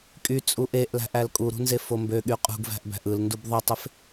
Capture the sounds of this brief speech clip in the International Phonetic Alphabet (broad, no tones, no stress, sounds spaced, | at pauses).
kʼ y t͡sʼ u ʔ e ʔ l æ̤ ʔ æ l kʼ u ɾ ṳ n z e f o m b ø ɠ y qʼ ṳ ɡ v æ̤ ʔ b æ̤ ʔ ɯ l n d u b ðˤ ɯ tˤ e f